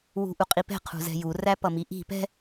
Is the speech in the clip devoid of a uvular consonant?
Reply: no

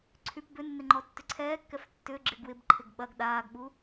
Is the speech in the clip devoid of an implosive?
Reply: no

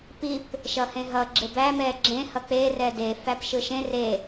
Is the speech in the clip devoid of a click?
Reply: no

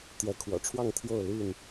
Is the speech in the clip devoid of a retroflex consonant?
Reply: no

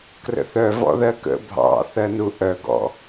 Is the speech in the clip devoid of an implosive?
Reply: yes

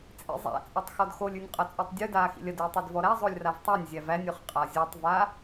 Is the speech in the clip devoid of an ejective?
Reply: no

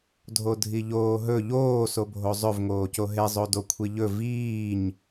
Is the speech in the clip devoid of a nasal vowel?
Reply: yes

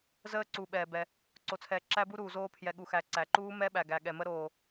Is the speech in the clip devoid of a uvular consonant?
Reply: yes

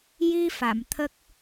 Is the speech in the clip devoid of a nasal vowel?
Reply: yes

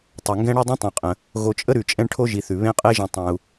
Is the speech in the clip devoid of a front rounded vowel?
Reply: yes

